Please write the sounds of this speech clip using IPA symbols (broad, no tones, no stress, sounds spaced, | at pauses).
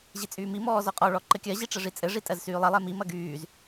ʑ i t͡sʼ yː m i m ɔː z ɔ qʼ ɔ ɭ ɔ ǃ ɘ kʲ ɜ ʑ i ʈ͡ʂ ɘ ʐ i t͡sʼ ɘ ʐ i tʼ ɜ z s yː lˠ ɐ lˠ ɛ m i m ɐ ɡ yː z